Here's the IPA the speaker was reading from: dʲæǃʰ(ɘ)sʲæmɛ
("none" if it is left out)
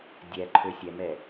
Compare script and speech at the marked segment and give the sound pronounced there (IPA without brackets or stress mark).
ø